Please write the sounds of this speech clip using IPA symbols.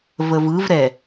v ə v ɯ v ɾ ɛ

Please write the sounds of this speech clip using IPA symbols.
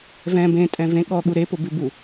v ɛ̃ b ẽ tʼ ɛ̃ v ẽ ɠ ɔ ɠ u ɾ e p ʊ b ʉ b u

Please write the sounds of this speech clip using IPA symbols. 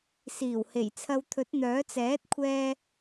s iː˨˩ w h e˨˩ j t͡sʰ ɐ˧ w t̪ʰ ɵ˨˥ t̚ n̪ œː˨˥ t͡s ɛː˨˥ t̚ kʷʰ ɛː˧

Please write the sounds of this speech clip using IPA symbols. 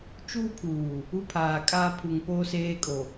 t͡ʃ uː˦ pʰ uː˨ | u˦ pʰ aː˨ kʼ a˦ pʰ u˨ ŋ p oː˦ s eː˦ kʼ o˨

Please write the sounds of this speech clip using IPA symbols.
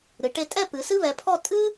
ɾ ɨ˩˧ ʈ e˧ tʼ ɛ˥˧ p ɨ˩˧ s ɨ˥ β ɛ˩˧ pʰ ɔ˥˧ tʼ ɨ˥

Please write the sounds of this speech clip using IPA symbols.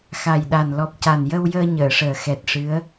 x a˨˩ j ɗ a˨˩ n l ɔ˨˩ p̚ c a˨˩ n j ə˧ w j əː˧ ɲ əː˨˩˨ ʂ əː˨˩ x ɛ˨˩ t̚ ʂ ɨ˧˥ ə̯

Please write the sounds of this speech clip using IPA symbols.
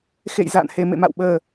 x ḛ˧˨ j z a̰ː˧˨ n h e˨˩ m ḛ˧˨ m a̰˧˨ w ɓ əː˨˩

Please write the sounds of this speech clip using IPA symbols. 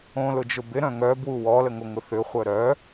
õ l ʊ d͡ʒ ʊ b ɪ ɾ œ̃ ŋ œ b w u w ɔ l ə ŋ o ŋ ʊ θ ʏ χʷ œ ɾ œ

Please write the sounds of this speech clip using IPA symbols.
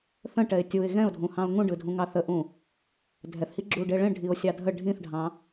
θ ə̃ ʈ ɛ ɪ̯ tʲ u ɪ̯ ɣ ɛ̃ ʊ̯ dʱ ũ h ɑ̃ ʊ̯ ŋ ũ ɖ ɯ dʱ ũ ŋ ɑ θ ə ʔ ũ | dʱ ɛ θ h i ɡ͡ǁ u ɖ e ɭ ẽ ɖʱ i ʊ̯ sʲ ɑ dʱ ə ɖʱ ĩ θ ɖʱ ɑ̃

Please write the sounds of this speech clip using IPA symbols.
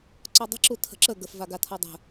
ǀ ɔ dˤ ə̤ ǁ u tʰ ə̤ ǁ ə ɡ ə f v a ɡ a tʰ ɔ dˤ ə̤

